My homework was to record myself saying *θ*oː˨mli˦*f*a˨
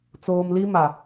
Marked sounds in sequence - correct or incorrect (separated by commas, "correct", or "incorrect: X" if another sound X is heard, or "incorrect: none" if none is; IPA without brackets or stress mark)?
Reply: incorrect: t͡s, incorrect: m